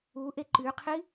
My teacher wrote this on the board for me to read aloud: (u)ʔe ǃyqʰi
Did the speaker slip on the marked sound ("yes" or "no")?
no